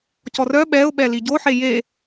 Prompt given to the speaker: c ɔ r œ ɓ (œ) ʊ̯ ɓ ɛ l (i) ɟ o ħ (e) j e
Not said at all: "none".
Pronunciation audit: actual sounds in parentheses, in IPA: ɛ, i, e

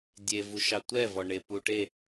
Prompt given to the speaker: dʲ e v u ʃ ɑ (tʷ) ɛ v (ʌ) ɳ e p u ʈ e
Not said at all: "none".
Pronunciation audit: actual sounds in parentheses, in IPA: tʷ, ɔ

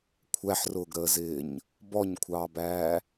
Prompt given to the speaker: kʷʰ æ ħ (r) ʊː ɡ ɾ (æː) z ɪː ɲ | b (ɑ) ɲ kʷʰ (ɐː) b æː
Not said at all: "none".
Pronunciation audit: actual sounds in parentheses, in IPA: r, əː, ɔ, ɑː

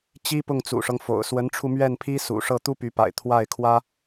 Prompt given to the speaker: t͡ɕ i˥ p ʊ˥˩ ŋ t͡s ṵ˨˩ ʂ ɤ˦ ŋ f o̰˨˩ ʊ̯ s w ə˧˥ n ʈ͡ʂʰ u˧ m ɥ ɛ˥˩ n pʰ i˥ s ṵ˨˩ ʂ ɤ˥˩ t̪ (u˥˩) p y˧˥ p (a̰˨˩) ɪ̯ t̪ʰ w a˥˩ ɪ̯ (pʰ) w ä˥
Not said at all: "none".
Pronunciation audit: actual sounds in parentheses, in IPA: u˥, a̰˨˩, kʰ

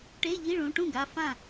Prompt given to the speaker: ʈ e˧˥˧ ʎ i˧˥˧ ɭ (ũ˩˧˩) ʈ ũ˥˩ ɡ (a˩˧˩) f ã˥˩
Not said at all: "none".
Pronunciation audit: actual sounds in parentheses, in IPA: ũ˩˧˩, a˩˧˩

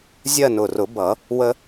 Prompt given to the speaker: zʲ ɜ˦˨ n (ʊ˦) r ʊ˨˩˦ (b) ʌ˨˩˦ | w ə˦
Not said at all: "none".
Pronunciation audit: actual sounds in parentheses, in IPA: ʊ˨˩, b

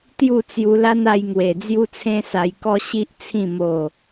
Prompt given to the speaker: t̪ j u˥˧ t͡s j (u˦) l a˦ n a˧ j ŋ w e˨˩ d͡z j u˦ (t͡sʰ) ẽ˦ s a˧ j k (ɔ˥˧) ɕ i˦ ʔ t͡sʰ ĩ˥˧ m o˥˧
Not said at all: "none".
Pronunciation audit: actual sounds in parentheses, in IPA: u˧, t͡sʰ, ɔ˦

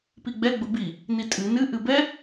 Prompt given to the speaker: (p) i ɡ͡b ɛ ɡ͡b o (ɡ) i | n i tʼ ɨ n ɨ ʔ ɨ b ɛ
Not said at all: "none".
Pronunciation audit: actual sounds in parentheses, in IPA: p, b

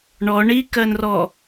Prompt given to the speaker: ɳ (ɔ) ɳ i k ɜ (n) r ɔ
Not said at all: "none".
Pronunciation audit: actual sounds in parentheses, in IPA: ɔ, n

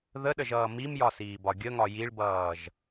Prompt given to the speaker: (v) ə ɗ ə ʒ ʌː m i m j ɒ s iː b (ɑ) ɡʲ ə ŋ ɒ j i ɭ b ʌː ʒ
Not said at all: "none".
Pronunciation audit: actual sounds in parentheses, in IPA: ð, ɒ

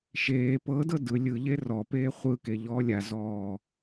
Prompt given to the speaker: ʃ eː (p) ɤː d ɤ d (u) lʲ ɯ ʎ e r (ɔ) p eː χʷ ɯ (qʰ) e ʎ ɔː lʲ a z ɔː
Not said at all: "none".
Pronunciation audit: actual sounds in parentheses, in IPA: p, ɯ, ɔ, k

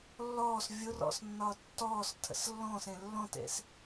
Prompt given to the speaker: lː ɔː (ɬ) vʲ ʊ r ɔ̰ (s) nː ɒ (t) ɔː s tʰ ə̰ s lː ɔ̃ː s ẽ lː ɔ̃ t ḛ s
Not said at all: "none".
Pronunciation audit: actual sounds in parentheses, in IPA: s, s, tː

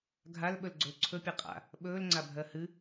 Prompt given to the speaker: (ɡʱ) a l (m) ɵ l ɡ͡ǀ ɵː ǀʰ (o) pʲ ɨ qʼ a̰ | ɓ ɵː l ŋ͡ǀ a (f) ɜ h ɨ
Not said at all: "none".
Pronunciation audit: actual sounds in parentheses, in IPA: ɡʱ, ɓ, ɵ, bʱ

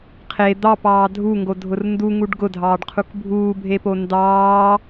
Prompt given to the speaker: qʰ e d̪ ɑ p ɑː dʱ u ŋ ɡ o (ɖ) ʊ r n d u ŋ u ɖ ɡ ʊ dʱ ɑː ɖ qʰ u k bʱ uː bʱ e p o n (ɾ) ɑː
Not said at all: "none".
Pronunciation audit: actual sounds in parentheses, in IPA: dʱ, d

